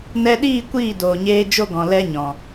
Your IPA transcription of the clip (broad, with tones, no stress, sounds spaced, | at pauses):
n ɛ˧ ɗ iː˦˨ kʷ iː˦˨ d oː˨ ɲ eː˧ d͡ʒ o˦ ɡ ɔ̃˨ l ɛ˦ ɲ ɔ̃˨